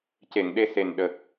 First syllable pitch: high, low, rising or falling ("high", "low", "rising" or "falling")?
low